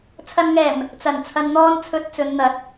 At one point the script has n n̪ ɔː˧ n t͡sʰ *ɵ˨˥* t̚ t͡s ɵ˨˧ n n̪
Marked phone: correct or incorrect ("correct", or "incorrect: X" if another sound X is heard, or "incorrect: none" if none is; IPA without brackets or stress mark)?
correct